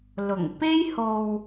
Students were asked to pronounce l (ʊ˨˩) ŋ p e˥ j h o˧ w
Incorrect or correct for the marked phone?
correct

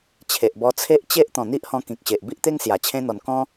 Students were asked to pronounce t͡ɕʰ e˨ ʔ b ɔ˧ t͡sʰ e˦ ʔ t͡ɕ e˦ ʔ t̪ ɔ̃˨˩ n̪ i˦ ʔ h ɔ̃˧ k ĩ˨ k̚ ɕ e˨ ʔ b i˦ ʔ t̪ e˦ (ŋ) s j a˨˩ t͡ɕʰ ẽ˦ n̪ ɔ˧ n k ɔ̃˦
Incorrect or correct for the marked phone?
correct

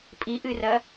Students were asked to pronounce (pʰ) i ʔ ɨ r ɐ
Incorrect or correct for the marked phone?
incorrect: pʼ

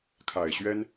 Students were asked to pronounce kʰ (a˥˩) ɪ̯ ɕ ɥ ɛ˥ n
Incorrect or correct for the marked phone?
incorrect: a˨˩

